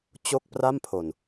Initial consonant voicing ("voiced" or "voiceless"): voiceless